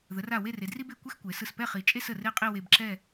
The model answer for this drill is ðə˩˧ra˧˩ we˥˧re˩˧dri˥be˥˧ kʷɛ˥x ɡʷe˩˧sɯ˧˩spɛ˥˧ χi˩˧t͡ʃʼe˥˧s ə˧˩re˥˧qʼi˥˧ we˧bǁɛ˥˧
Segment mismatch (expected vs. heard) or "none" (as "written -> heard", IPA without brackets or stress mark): ɡʷ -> kʷ